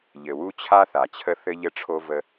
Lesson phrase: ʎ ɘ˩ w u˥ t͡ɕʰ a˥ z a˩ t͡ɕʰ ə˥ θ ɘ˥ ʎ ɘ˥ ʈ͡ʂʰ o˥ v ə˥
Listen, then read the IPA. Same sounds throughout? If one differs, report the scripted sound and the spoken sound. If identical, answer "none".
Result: z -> θ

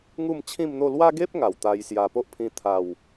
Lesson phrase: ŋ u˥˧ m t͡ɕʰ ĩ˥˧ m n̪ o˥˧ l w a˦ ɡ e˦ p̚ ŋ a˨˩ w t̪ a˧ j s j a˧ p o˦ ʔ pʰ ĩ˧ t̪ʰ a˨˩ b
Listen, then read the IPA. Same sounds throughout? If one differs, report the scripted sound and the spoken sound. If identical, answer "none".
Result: b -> w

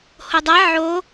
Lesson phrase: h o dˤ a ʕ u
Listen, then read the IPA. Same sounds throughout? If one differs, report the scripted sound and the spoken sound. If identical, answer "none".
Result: u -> o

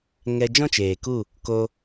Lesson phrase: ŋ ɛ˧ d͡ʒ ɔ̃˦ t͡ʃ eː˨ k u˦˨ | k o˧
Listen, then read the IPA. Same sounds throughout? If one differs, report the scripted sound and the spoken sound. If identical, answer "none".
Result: none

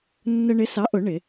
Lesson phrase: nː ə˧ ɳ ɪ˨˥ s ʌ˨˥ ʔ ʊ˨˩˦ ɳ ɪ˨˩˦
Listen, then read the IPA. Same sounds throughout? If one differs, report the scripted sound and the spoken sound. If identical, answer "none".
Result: ʌ˨˥ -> ɑ˨˥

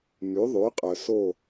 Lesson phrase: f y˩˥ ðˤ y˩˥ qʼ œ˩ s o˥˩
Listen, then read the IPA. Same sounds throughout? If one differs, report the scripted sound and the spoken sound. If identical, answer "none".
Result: f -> m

